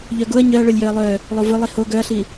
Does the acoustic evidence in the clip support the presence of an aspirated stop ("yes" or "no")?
no